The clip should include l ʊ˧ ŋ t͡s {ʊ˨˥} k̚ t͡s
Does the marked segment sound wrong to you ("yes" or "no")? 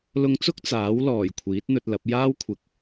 yes